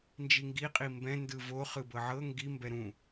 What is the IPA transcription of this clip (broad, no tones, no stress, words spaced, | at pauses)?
nd͡ʒiŋɡi qʼimbɛ̃ ndɯvo χɯbɤʕɤ ŋɡi mbɛɾũ